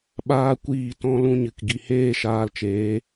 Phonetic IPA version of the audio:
ɓ aː˦ kʷ iː˦˨ t ɔ̃˦ l ũ˦ ɲ ɨ˨ k ɡ i˨ h eː˦ ʃ aː˧ l t͡ʃ eː˨˦

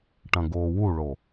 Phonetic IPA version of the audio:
ʈ ɐ̃ ɡ oː w u ɭ o

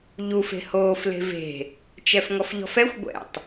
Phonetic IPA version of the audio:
ʎ u f e̤ h oː f l e̤ v e̤ | t͡ʃ ɛ f ŋ ɔ f ʎ ɔ̤ f ɛ xʷ ɡʷ ɛ̰ tˤ

